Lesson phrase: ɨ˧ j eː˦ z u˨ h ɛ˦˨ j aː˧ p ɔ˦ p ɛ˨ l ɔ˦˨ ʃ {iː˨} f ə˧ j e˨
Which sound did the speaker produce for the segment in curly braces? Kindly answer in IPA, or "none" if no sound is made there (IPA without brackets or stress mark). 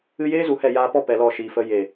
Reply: iː˨